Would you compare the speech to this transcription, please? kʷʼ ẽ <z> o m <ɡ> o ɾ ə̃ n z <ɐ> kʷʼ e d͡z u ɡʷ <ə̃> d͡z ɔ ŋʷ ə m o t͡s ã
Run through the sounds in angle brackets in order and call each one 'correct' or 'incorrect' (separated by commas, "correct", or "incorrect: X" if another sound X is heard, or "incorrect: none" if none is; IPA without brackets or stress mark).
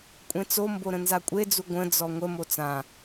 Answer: incorrect: t͡s, incorrect: b, incorrect: a, correct